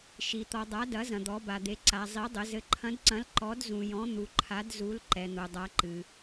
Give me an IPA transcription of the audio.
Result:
ʃ i˨ t̪ ɔ˨ dˤ a˨˦ d ɐ˨˦ z ɐ̃˨ d̪ ɔ˨˦ b a˨ d̪ e˨˦ ǀ a˨ zˤ i˨˦ dˤ ɘ˨˦ z ɘ˨ ǃʰ ɐ̃˨˦ d ǀ ɐ̃˨˦ l ǃ ɔ˨˦ d z ũ˨ j ɔ̃˨˦ n̪ u˨ ǃʰ a˨˦ d z u˨˦ l ǃ ɛ˨ n̪ o˨ dˤ a˨˦ ǃ ɨ˨

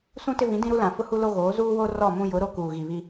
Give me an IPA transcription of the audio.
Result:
s ũ˦ t ɪ˦ v ĩ˨˦ d ĩ˦ ɾ u˦ l ã˨ f ʊ˦ h u˦ l o˦ ɣ oː˨˦ z uː˦ w o˦ r ɔ˦˨ m ũ˦ j ʊ˨˦ ɾ o˦ k uː˨ ɣ i˨ β i˦

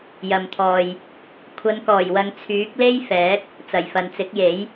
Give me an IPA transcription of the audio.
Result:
j ɐ˨ m t̪ʰ ɔː˨ j | kʷʰ ɐ˨˧ n k ɔː˨˩ j w ɐ˨ ŋ t͡sʰ yː˨˥ k̚ l e˥ j f ɛː˨˥ k̚ | t͡s ɐ˨˩ j f ɐ˨ n t͡s ɪ˨˥ k̚ j e˨˥ j

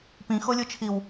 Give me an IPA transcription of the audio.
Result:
p ĩ x o lʲ o t͡ʃʰ i w

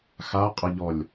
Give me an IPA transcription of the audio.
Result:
x a qʼ ʌ ʎ ɔ lʲ

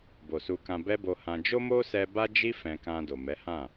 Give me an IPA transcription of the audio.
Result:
b o˨ s u˧ k ã˧ b ɛ˦ b o˧ h ã˧ d͡ʒ o˦ m o˦ s ɛ˧ b a˦ d͡ʒ i˦ f ɛ̃˧ k ã˧ d o˨ m ɛ˨˦ h ã˦˨

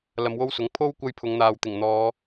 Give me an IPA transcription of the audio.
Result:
l ɐ˧ m w o˥ w s ʊ˨˥ ŋ pʰ o˥ w kʷ ɐ˥ j pʰ ʊ˨˧ ŋ n̪ aː˨ w t̪ ɪ˨˩ ŋ n̪ ɔː˨˧

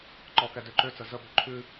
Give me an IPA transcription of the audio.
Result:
ǃ ɔ k ɛ d ø ǃ ø t͡s ə z ə b ø ǃʰ ʉ

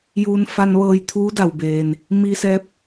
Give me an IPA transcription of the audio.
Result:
j uː˧ n f a˧ n ʋ ɤː˧ j t̪ʰ uː˧˥ d a˩ w b eː˩ n | m i˧ s ɛː˧ p̚

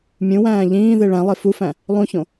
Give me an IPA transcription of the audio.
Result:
mʲ ũ w æ̃ː ʎ ĩː ð e ɭ æ̃ lˠ e f u f æ̃ | lˠ ũ ç õ

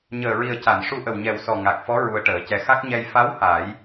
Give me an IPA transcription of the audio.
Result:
ɲ əː˨˩ ɹ i˨˩ ə̯ c a˨˩˨ n ʂ u˧ ʔ ə˨˩ w ɲ ɛ˨˩ w s ɔ˨˩ ŋ a˨˩ k̚ f ɔ˧˥ ɹ u˧ ə̯ ʈ əː˨˩˦ c ɛ˧ x a˦˥ k̚ ɲ ɛ˧ j f a˧˥ w h a˨˩˦ j

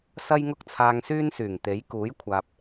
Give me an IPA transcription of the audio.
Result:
s ɐ˥ j ŋ ʊ˥ k̚ t͡sʰ aː˧ ŋ s yː˥ n s yː˨˩ ŋ t̪ e˨˥ j k uː˨˥ j kʷʰ aː˨ p̚

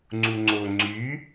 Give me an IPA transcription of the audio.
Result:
ŋ͡ǀ u ŋ͡ǀ o ŋ͡ǀ y

